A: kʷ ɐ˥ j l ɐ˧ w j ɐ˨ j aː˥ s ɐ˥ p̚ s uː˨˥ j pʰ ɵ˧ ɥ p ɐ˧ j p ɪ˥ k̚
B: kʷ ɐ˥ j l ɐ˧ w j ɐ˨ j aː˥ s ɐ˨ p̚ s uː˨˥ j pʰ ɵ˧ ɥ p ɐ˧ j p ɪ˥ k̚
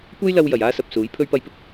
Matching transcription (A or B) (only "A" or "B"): B